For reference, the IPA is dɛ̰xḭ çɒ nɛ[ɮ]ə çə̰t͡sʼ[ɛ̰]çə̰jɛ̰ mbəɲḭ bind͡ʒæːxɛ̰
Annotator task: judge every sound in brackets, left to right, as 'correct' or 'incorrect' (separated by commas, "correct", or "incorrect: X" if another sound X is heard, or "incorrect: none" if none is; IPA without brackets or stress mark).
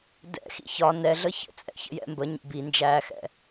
correct, correct